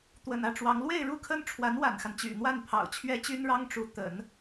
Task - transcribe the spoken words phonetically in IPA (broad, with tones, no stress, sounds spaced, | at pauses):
t̪ w ə̰˨˩ n ä˥˩ ʈ͡ʂ w ɑ˧˥ ŋ l w e˥˧ ɪ̯ ɻ u˥˩ kʰ ə˥ n ʈ͡ʂʰ w a˧˥ n w a̰˨˩ n x a˦ n t͡ɕ y̰˨˩ n̪ w a˥˩ n pʰ ɑ̰˨˩ ʊ̯ t͡ɕʰ ɥ ɛ˥ t͡ɕ y˥ n ɻ ɑ˥ ŋ ʈ͡ʂ u˧˥ t̪ ə̰˨˩˦ n